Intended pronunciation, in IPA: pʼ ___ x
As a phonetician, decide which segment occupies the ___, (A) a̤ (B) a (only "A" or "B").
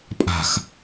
A